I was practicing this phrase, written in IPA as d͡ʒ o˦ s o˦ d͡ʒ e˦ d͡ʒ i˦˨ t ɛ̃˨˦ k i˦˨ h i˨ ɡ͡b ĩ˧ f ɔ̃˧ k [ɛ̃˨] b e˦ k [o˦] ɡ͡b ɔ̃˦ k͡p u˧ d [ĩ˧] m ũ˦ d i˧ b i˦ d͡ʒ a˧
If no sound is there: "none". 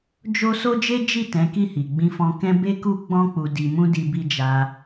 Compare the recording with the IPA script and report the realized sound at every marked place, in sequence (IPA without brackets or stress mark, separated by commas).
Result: ɛ̃˦, u˦, i˧